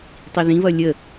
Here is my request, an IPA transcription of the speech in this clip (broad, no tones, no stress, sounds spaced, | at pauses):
tˤ i ð ĩ β ʌ lʲ ə